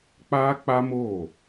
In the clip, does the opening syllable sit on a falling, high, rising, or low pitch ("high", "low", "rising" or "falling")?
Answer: high